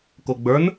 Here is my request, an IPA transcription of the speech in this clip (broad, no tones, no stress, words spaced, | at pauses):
koɡ͡bə˞n